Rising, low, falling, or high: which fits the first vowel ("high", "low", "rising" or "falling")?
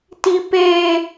high